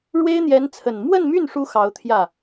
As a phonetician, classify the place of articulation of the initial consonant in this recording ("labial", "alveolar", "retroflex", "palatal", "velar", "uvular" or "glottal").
retroflex